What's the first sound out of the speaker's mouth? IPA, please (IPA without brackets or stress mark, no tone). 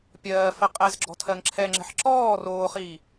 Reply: pʲ